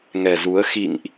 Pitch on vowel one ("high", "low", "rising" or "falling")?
low